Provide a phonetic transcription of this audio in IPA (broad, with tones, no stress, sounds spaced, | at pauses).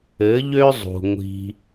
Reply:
ɘ˨˦ ʎ ø˦ zˤ ṳ˨ ŋʷ i̤˧